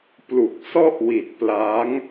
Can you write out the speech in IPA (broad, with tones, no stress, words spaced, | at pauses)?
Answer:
plu˨˩k̚sɔ˥˩ʔwi˨˩t̚ pla˦˥ŋ